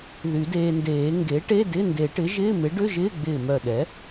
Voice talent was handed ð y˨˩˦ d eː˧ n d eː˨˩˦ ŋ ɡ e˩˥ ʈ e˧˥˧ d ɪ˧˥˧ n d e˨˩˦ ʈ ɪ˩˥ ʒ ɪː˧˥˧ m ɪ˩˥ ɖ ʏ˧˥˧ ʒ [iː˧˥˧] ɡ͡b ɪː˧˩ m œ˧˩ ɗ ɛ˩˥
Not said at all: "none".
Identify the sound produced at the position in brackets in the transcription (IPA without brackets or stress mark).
ɪː˧˥˧